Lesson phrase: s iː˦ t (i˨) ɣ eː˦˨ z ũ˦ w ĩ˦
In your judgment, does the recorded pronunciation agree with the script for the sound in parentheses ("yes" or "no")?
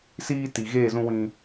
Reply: yes